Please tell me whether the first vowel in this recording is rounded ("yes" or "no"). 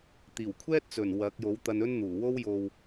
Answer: no